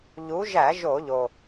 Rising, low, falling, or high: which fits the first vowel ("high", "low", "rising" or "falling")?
rising